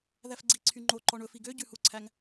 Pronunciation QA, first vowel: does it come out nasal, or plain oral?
oral